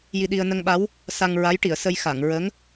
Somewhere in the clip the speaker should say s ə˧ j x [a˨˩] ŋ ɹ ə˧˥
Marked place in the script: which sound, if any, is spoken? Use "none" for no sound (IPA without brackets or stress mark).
a˨˩˨